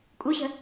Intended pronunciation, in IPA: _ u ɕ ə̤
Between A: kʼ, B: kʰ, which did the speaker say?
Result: A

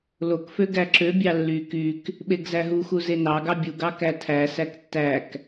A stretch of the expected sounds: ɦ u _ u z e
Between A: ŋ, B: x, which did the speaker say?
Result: B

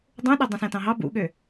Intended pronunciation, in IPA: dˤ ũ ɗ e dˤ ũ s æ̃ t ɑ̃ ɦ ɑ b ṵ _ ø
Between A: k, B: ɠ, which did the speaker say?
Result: B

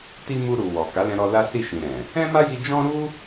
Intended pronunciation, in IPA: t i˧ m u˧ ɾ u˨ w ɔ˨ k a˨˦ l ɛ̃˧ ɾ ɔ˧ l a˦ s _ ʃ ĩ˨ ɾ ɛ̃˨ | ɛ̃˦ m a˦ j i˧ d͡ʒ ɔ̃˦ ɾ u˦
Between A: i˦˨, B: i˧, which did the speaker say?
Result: A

